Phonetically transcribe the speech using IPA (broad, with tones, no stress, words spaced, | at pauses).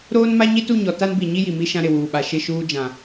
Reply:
ɾoː˦n ma˦ɲi˦tu˦˨ɲɔ˨ ta˦nbi˨ ɲi˦ji˨ mi˦ʃã˦ ɾɪ˨wuː˨ɓa˨ ʃɪ˦˨ʃuː˦ d͡ʒã˨